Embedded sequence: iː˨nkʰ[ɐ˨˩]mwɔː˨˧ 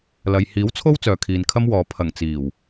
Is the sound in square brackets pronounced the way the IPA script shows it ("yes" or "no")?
no